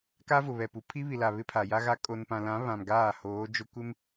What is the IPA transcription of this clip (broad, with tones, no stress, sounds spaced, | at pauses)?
k a˦ v ʊ˨ β ɛ˨ p u˨ pʰ i˦ β i˨ l a˨ β ɪ˦ pʰ a˨ j a˦ ɣ a˦ kʼ o˨ n p ã˨ l ã˨˦ β ã˨ m ɡ aː˦˨ h oː˨˦ d͡ʒ ʊ˦ kʷ ɪ˦ m